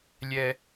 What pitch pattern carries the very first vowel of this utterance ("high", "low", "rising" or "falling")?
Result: low